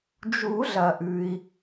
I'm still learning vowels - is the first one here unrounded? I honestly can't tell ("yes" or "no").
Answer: no